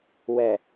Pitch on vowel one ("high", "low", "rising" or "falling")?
low